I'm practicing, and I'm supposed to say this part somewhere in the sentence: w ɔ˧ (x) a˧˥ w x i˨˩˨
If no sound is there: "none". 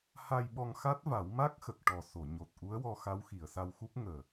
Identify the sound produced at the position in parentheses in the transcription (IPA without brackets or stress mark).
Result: x